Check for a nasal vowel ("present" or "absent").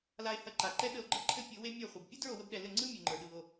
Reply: absent